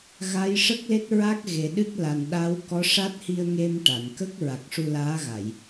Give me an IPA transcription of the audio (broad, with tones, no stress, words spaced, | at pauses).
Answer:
ɣa˧˥j ʂə˦˥k̚le˦˥t̚ ɹa˦˥k̚ ɣe˨˩ɗɨ˦˥k̚ la˨˩n ɗa˧˥w kɔ˧˥ʂa˦˥t̚hi˧ə̯ŋe˧m ʈa˨˩˨n kə˦˥k̚ ɹa˨˩k̚ʂu˧laː˧˥ ɣa˨˩˨j